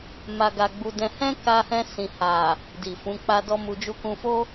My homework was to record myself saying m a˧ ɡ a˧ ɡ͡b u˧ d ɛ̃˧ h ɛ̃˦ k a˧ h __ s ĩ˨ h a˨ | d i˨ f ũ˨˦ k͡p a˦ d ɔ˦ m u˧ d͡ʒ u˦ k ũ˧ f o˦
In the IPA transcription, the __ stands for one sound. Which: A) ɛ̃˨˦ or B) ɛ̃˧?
B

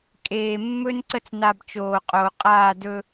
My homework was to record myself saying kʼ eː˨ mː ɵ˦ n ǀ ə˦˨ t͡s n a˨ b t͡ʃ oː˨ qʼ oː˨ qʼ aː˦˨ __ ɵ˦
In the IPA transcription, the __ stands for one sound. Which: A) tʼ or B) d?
B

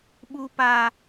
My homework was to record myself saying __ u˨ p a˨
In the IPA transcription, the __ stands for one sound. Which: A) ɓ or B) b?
A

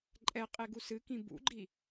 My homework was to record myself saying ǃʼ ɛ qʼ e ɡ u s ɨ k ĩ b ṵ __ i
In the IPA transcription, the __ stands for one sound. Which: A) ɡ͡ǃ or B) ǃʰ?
A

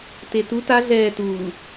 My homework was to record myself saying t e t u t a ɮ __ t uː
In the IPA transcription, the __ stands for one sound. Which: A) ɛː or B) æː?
A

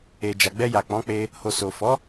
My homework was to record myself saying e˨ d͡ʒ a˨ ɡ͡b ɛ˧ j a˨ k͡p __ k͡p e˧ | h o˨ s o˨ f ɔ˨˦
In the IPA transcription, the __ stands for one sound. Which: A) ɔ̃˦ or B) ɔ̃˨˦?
B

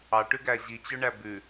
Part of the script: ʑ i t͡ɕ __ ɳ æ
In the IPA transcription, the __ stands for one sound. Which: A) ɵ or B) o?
A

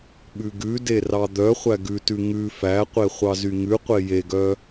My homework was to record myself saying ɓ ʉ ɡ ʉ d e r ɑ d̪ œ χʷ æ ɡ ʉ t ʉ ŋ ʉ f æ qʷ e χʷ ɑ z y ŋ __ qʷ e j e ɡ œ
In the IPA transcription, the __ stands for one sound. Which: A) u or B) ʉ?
B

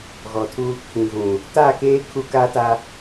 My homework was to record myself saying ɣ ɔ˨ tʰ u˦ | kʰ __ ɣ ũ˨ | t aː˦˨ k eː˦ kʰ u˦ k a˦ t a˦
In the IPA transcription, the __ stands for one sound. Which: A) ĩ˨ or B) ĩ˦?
A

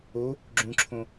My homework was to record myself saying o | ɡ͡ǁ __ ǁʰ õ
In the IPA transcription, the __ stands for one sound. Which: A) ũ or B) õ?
A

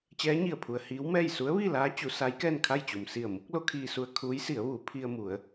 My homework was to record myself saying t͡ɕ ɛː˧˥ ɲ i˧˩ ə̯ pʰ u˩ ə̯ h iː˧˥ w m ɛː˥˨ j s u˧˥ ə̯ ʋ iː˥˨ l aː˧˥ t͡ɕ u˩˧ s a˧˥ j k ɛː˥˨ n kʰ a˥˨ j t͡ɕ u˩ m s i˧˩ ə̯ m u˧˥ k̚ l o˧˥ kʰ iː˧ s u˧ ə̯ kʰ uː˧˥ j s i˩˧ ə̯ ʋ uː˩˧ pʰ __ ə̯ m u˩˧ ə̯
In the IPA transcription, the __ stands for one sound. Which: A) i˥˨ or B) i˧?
B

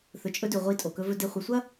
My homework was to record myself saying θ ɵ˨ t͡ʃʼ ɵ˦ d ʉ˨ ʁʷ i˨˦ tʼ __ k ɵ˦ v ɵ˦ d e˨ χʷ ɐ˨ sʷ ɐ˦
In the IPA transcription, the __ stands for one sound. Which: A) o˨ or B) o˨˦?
A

